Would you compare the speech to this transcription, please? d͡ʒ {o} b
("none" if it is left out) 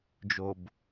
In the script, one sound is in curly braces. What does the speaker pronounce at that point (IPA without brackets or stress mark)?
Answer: o